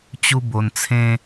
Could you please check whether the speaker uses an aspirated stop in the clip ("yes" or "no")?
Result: yes